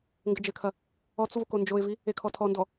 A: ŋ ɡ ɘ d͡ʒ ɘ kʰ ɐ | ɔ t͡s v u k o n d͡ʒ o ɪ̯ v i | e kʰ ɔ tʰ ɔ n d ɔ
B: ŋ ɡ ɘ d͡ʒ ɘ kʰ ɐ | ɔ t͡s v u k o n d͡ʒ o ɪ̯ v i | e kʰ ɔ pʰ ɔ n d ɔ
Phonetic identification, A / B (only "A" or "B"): A